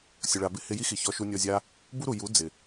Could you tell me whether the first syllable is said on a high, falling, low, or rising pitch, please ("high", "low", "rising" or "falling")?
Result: low